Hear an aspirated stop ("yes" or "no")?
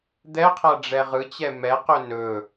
yes